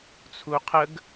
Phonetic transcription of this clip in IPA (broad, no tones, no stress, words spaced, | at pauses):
t͡sʰuqʰəɡ